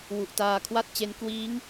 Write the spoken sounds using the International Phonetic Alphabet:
w u˨˩ ʔ t aː˧ kʰ w a˥˩ t̚ t͡ɕ e˦˥ n k w iː˦˥ ŋ

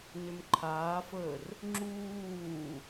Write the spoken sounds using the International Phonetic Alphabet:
n ʏ m ǃʰ aː f əː r | ŋ͡ǁ uː

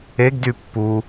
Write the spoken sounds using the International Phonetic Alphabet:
e ɡ d y pː u

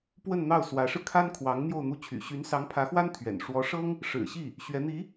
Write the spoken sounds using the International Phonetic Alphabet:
p w ə˥˧ n n̪ ɑ˥˩ ʊ̯ s w ä˧˥ ʂ ɻ̩˧ kʰ a˥ n kʰ w ɑ˧˥ ŋ n̪ j o˥˧ ʊ̯ n̪ u˥˩ t͡ɕʰ y̰˨˩ ɕ y˧˥ n s ɑ˧˥ ŋ pʰ ä˧˥ x w a˥ n t̪ʰ ɥ ɛ̰˨˩ n ʂ w ɔ˧˥ ʂ ɤ˥ ŋ | ʂ ɻ̩˨˩ ɕ i˥˩ | ɕ ɥ ɛ˧˥ n̪ i˧˥

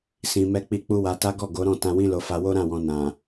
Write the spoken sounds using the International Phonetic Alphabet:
s ĩ˨ m ɛ˧ k͡p i˧ k͡p u˦ w a˧ t a˦ ɡ ɔ˦˨ ɡ o˨˦ ɾ ɔ̃˦˨ t ã˧ w ĩ˦ l o˧ f a˧ w o˦ ɾ ã˦˨ w ɔ̃˨ n ã˨

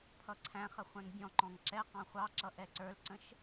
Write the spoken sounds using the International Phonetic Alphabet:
pʰ ʌ ǀʰ æ̃ χ ə χʷ ɛ̃ ŋ bʲ ɔ̃ ǃ ɔ̃ ŋ ǁ ɛ q ɑ̃ χʷ ɑ ǁ ʌ ʔ ɛ ǀ ə˞ l ǀ ə̃ ʃ

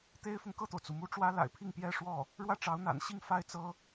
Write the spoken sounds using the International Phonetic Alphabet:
t̪ e˥ ɪ̯ f ʊ˨ ŋ k ɤ˥˩ t̪ o˩ ʊ̯ t͡s u˩ m u˧˥ ʈ͡ʂ w ä˥ l a̰˨˩ ɪ̯ pʰ i˥˩ ŋ p j ɛ˥ ʂ w ɔ˥˩ | ɻ w ä˥˩ ʈ͡ʂ ɑ˧˥ ʊ̯ n̪ a̰˨˩ n ɕ i˥˧ ŋ f a˥˩ ɪ̯ t͡s ɤ˥

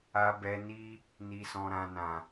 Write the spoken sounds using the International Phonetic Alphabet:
a˨ b ɛ˨ n i˧ | n i˨ s ɔ̃˨ ɾ ã˨ n ã˨

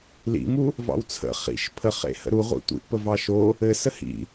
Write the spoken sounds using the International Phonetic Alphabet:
l ḭ m u | v ɑ̰ w t͡sʰ ə̰ χ ḭ ʃ pʰ ə χ ḛ h ə̰ ɾ u ʁʷ ḭ tʷ ḭ ʔ p ə v ɑ ʃ o | ɘ s ə h ḭ

